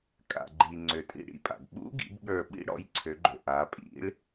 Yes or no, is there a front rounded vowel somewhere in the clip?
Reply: yes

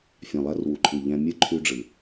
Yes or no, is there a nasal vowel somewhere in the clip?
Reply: yes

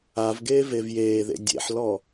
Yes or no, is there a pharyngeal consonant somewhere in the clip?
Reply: yes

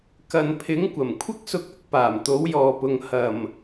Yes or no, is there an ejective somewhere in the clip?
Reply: no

